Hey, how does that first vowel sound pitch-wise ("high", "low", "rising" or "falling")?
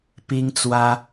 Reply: high